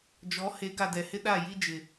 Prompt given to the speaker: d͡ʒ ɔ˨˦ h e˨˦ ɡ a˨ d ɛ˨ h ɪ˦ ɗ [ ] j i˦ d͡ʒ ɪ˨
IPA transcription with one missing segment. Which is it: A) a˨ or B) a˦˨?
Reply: B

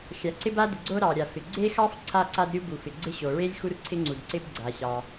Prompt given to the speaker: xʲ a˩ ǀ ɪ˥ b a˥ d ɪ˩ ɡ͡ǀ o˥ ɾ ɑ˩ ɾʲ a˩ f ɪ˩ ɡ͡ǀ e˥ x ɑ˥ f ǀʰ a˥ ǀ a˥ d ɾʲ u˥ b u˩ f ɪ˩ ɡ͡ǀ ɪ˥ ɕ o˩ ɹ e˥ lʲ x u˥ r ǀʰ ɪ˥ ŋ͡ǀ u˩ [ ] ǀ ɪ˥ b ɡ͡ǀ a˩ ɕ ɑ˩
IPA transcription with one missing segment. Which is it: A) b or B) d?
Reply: B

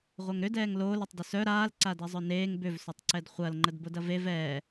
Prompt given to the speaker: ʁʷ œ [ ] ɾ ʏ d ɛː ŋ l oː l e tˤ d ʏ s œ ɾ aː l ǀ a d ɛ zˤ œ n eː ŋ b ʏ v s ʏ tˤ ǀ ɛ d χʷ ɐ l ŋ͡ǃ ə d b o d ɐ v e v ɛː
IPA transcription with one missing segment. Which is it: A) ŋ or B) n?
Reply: A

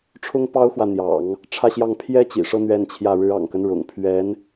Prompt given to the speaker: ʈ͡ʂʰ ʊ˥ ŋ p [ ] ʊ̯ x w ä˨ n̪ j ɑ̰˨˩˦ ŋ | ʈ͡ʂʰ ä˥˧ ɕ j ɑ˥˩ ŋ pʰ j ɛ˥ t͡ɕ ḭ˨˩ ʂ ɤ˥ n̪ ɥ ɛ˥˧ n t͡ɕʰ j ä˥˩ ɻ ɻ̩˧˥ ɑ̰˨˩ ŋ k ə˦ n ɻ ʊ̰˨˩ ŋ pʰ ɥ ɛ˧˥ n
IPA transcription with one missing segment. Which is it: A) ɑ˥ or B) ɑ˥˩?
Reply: A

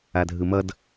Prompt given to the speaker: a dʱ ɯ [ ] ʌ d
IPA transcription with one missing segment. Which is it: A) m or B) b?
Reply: A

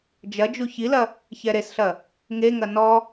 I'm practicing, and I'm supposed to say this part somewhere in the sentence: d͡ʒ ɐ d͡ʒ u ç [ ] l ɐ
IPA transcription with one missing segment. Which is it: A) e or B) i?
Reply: B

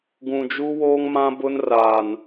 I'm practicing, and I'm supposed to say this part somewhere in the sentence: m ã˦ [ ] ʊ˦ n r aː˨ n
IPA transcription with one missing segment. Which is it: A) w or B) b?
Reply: B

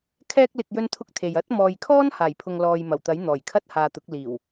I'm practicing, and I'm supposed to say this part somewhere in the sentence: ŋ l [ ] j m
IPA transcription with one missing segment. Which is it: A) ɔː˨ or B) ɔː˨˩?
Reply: A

